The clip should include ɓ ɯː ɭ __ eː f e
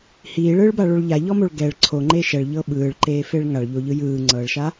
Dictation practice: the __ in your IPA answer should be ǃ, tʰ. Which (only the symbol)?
ǃ